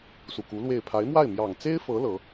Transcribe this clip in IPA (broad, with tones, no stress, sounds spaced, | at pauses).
s u˨˩ k u˧˥ l w e˥˩ ɪ̯ pʰ a˧˥ ɪ̯ m w a˥˩ ɪ̯ m j ɑ˨˩ ŋ t͡s e˥ ɪ̯ f ɤ˧˥ l ɤ˧˥